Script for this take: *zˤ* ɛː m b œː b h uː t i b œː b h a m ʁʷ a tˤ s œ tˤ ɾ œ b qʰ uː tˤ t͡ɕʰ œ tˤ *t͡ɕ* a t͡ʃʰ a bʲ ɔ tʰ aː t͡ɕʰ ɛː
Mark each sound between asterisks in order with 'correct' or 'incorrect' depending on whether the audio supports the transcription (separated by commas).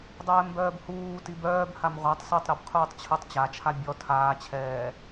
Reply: incorrect, correct